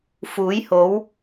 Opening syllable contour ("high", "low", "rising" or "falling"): rising